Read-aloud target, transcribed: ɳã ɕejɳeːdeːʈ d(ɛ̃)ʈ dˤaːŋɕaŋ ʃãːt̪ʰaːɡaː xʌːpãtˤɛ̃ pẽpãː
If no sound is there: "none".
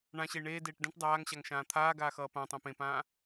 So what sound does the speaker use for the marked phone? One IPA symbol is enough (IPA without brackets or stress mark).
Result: ɛ̃